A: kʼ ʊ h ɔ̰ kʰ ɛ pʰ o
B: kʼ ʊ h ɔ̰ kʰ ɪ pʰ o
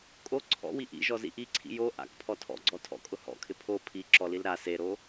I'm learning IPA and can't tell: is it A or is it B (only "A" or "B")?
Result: B